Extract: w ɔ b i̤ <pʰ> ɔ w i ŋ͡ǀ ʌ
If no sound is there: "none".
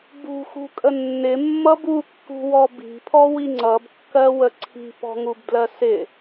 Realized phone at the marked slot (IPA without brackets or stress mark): pʰ